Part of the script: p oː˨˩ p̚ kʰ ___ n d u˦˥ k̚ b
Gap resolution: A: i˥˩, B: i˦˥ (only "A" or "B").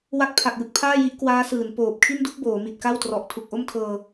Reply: A